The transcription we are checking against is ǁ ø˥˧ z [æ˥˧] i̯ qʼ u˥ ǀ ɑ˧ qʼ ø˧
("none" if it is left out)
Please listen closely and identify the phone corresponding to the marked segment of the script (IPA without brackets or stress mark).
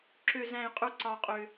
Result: æ̃˥˧